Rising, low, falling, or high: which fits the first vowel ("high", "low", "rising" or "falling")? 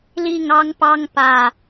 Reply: falling